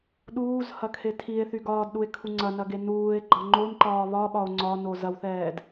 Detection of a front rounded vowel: present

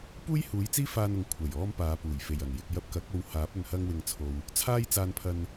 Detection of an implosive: absent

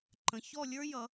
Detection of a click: present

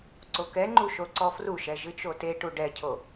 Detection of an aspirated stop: present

